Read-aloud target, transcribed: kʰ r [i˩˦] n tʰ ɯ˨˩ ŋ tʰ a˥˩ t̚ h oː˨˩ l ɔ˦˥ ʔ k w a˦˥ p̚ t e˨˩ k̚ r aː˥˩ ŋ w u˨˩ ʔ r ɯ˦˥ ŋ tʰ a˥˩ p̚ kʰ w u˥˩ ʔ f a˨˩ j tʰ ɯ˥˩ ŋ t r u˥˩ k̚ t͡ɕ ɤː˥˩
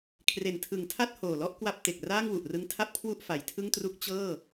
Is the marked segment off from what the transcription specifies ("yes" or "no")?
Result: yes